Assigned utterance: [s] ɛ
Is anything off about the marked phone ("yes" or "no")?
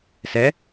no